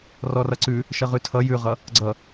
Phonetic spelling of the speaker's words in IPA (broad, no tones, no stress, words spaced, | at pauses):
rɔrʌǀʉ | ʃʌʁʉtʰʌ jʉʁʌ | ɡ͡ǀʌ